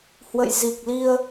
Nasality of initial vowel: oral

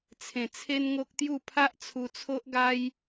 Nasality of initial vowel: nasal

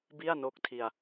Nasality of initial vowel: oral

